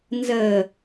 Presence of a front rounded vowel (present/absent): absent